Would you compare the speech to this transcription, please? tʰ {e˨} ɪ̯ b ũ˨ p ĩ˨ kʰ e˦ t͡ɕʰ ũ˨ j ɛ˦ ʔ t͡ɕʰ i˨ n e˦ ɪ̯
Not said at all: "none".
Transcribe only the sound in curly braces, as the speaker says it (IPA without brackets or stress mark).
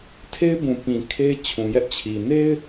e˦